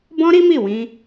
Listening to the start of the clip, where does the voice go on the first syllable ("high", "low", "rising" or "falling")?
high